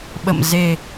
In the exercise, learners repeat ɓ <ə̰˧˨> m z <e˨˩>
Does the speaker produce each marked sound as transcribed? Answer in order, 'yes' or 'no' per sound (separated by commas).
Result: yes, yes